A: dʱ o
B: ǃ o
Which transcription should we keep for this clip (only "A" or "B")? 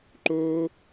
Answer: B